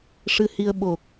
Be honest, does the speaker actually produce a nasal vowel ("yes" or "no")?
no